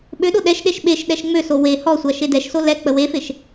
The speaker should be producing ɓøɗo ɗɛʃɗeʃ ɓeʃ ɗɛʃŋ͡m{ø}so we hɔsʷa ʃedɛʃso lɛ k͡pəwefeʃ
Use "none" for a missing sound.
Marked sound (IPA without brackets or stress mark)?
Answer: ø